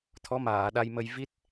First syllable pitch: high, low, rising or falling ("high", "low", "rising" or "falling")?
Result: rising